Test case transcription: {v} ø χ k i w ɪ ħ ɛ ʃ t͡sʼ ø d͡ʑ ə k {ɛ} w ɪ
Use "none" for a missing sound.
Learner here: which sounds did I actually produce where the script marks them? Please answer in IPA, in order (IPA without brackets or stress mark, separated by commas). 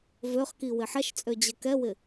v, ɛ